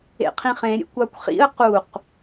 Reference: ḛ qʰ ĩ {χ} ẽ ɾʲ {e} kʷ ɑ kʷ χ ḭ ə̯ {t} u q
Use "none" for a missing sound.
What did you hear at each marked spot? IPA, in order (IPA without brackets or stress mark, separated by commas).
χ, ḛ, q